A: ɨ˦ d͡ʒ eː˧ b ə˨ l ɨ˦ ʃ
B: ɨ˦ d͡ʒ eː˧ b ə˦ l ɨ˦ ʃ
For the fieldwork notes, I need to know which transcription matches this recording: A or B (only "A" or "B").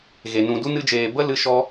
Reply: B